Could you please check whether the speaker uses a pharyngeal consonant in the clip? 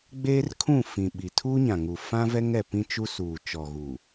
no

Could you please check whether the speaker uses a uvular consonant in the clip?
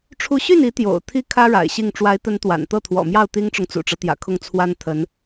no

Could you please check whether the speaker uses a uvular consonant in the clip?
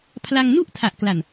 no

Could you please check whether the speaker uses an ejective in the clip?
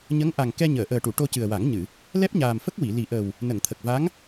no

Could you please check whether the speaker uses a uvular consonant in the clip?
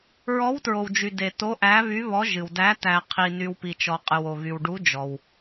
yes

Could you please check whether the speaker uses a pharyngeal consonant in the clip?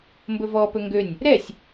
no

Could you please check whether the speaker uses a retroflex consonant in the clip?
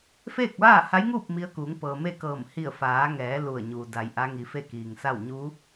no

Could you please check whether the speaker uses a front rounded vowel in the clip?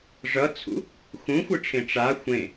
no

